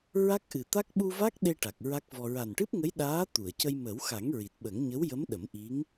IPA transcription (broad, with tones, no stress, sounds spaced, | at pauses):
ɹ a˦˥ k̚ ʔ ɨ˨˩ t̪ a˦˥ k̚ ɓ u˧ v a˦˥ k̚ ɗ e˧ ʈ a˨˩ k̚ ɹ a˦˥ k̚ v ɔ˧ ɹ a˨˩ n ʈ ɨ˦˥ p̚ ŋ ə˧˥ j ɗ aː˧˥ t̪ u˨˩˨ ə̯ c ə˧ j m ə˨˩˦ w x a˨˩˦ ŋ ɹ i˨˩ t̚ ɓ ə˨˩˦ ŋ ɲ ə˧˥ w j ə˧˥ m ɗ ə˨˩˦ m ʔ i˧˥ ŋ